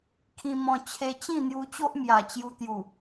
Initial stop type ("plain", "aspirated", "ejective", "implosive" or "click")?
aspirated